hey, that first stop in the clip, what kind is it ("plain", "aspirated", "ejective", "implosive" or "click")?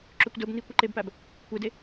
click